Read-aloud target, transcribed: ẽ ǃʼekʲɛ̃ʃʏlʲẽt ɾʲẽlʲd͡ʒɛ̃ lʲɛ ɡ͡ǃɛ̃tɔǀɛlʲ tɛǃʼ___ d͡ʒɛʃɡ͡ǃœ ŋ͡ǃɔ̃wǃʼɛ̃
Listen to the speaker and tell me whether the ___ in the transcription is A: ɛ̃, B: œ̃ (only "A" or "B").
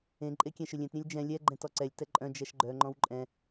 B